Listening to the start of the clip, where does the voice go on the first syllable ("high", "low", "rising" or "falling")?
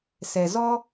low